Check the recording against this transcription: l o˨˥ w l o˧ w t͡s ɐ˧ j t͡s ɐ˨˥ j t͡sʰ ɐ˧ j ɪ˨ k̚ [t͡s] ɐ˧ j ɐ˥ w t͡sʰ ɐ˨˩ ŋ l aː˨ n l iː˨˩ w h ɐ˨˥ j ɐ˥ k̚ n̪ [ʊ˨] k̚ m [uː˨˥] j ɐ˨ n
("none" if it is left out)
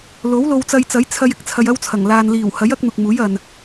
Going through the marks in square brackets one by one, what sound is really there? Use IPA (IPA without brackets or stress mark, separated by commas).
t͡sʰ, ʊ˨, uː˨˥